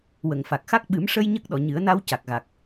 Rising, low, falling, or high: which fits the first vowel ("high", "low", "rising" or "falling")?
low